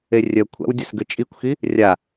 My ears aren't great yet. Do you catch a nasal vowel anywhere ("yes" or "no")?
no